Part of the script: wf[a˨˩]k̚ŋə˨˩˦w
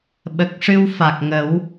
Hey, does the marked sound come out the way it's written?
yes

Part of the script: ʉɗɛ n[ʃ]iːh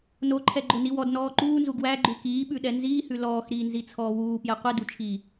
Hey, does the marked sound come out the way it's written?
no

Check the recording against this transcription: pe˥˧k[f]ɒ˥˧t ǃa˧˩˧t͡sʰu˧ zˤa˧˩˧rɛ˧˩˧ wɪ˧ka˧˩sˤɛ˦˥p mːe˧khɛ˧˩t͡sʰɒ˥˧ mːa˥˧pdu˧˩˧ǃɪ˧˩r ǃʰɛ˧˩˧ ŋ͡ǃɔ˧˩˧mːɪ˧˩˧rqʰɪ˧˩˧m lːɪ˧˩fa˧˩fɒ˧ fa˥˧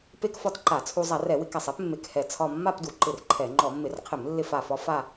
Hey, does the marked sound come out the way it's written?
yes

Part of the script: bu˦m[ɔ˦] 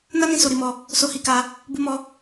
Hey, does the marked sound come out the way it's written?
yes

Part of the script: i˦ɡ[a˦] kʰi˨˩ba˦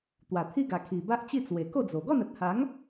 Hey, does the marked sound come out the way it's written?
no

